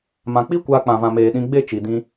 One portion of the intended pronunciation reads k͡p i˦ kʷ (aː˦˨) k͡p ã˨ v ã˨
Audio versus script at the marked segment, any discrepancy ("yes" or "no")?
yes